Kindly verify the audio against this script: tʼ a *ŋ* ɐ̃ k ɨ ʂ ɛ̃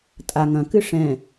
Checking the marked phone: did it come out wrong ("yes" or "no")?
no